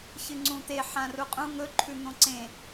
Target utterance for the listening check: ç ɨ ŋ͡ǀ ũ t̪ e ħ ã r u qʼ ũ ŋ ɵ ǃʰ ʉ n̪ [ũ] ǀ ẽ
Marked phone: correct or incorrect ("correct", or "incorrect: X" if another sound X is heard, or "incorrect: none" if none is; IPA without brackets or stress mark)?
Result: incorrect: õ